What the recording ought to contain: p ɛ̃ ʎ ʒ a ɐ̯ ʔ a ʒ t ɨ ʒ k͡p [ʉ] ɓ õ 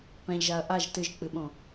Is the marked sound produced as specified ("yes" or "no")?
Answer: no